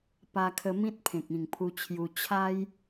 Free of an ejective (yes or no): yes